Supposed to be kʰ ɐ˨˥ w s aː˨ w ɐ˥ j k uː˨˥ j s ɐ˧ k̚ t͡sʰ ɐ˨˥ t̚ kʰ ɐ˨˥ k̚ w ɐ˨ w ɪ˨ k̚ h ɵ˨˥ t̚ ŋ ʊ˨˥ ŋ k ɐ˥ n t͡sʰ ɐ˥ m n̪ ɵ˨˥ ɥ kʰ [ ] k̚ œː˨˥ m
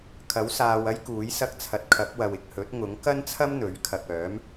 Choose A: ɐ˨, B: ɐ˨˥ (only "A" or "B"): A